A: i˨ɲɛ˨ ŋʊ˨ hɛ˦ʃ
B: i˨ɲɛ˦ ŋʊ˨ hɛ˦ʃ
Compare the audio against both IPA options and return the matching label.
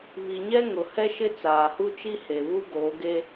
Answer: B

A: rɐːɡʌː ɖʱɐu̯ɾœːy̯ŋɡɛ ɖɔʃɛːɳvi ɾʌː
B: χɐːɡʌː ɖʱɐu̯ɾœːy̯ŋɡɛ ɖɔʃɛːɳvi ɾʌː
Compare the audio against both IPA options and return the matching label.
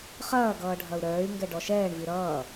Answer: B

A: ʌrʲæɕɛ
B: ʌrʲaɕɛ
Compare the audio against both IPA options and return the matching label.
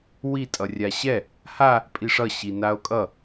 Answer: B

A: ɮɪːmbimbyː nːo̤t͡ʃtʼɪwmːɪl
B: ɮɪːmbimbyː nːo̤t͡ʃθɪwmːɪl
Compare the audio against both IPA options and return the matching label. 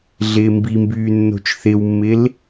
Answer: B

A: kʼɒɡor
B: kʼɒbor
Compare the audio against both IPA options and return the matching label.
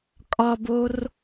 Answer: B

